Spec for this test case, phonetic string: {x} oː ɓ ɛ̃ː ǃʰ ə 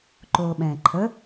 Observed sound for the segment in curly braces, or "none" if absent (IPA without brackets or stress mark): ǃ